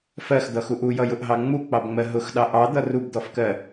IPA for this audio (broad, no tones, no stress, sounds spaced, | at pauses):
f ɜ x d̪ ʌ x u ʔ u j ʌ j ʊ ʔ ɦ ɑ ŋ͡m u k͡p ɑ b ŋ͡m ɜ ɦ ʊ x ɗ ɑ ʔ ɑ d̪ ʌ r u b d̪ ɔ f k ɜ